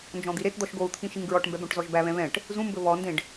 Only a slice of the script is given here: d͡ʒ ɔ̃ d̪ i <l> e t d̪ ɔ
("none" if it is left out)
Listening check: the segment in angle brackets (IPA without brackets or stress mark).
ɾ